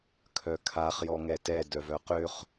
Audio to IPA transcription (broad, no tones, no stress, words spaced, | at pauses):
kʰœkʰaχ jɔŋɛtɛ dœvœqøχ